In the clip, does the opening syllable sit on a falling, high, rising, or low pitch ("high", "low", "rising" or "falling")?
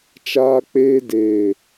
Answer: high